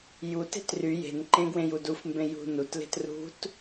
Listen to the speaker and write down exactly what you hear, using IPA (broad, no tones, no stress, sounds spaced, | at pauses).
j u t e̤ t r y j e̤ n ǃ ẽ ɡ w ẽ j u d u f m b ẽ j ṳ n u t l e̤ t r ṳ t